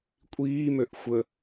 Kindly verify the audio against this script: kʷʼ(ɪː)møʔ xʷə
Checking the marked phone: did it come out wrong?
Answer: yes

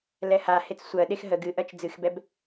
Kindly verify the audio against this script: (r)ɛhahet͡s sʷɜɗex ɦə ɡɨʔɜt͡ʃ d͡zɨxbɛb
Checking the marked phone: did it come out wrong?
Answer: yes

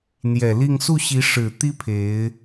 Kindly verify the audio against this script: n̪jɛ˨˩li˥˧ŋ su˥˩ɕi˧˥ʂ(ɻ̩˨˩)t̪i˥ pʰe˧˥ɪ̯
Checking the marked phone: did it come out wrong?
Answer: no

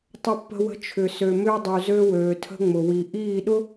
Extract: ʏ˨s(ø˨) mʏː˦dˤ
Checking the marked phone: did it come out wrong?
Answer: no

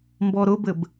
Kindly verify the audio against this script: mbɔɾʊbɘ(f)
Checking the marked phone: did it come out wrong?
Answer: yes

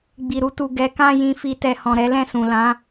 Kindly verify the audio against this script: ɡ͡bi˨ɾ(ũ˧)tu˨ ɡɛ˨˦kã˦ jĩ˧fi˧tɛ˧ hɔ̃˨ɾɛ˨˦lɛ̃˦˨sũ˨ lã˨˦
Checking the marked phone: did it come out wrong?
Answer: yes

